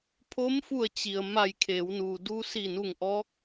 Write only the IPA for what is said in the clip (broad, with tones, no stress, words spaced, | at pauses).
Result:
pʰo˧˥mfu˧˩ə̯ t͡ɕi˩ə̯ ma˧˩jkʰeː˩˧wnuː˩ du˧si˧˩nu˧˩ŋʔɔː˧˥k̚